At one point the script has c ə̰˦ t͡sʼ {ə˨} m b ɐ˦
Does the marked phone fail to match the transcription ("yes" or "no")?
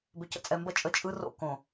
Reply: yes